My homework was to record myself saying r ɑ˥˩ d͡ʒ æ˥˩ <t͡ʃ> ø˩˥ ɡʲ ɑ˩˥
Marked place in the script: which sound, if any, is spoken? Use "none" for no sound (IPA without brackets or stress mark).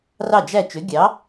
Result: t͡ʃ